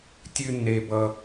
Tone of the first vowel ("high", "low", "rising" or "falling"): high